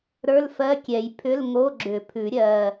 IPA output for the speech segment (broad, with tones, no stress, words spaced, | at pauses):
ɾə˞˧˥˧lfɜ˧˥˧kʲɛ˨˩˦j pʰʏ˧˥˧lŋo˧˥˧ɡ͡ǁʏ˨˩˦pʰʉ˨˩˦ ɾʲɜ˧˥˧